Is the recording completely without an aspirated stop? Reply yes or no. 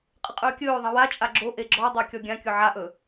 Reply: yes